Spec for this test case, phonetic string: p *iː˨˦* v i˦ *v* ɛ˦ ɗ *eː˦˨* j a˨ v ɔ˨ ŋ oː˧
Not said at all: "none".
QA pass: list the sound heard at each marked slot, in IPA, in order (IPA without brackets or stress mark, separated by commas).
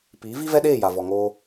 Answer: iː˨˦, v, eː˦˨